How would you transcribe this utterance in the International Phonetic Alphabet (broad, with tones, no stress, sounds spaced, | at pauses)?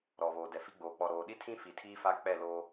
ɾ ɔ˨ β oː˨ d ɛ˨ f i˦ ɡ͡b oː˨ k͡p ɔ˨ ɾ oː˨ ɗ i˦ tʰ ĩ˦ f i˨ tʰ iː˦ f a˦ k͡p ɛ˦˨ l oː˦